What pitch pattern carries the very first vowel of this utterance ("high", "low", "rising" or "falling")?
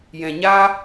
low